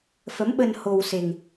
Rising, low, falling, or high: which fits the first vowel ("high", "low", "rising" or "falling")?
rising